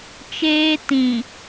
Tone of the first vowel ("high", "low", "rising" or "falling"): high